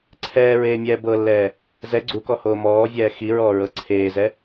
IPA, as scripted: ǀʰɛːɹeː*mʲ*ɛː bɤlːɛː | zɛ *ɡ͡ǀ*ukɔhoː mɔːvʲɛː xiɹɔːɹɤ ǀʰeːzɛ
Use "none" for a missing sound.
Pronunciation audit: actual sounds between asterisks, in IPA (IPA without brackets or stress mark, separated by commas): mʲ, ɡ͡ǀ